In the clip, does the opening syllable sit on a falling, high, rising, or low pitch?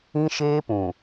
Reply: high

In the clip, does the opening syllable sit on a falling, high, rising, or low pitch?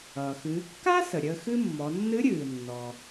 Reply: low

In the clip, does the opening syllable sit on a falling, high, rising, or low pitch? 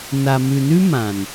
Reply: low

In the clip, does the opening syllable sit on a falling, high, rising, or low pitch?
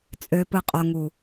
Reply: low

